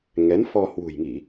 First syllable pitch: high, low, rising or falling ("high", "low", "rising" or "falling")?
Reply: rising